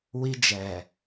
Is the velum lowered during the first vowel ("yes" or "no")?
no